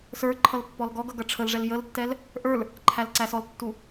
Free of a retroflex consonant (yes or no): no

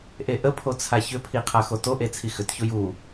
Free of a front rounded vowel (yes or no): no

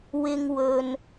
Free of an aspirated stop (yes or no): yes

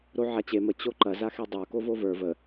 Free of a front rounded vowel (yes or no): yes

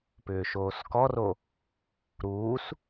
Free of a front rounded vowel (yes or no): no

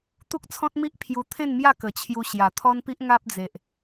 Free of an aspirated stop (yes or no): no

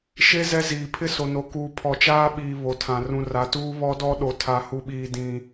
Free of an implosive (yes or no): no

